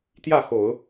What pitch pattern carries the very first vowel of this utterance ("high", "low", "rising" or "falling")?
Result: falling